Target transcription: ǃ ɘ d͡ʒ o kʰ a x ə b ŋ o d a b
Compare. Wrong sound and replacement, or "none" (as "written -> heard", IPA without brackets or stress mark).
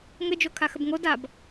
ǃ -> ŋ